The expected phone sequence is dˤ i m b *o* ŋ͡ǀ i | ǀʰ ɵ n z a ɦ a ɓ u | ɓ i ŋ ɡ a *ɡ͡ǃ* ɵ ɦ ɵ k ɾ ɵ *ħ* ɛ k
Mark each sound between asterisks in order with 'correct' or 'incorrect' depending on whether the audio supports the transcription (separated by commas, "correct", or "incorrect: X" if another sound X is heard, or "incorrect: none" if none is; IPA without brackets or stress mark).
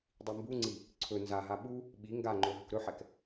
incorrect: u, incorrect: ŋ͡ǃ, correct